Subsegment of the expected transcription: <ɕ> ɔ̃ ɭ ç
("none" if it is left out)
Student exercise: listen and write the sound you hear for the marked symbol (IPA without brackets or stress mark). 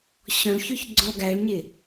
ɕ